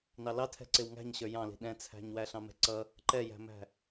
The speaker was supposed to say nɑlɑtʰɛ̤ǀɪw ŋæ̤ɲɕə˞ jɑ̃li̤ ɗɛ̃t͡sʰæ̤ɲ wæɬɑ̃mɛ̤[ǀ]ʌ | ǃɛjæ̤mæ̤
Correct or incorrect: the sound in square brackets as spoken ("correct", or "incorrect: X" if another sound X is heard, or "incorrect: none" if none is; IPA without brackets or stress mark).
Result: correct